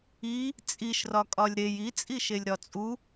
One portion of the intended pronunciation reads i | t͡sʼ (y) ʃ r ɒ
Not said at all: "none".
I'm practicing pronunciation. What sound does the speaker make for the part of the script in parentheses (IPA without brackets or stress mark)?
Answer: i